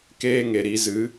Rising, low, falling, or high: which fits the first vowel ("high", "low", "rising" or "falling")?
high